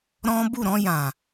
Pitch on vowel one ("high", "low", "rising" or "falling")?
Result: high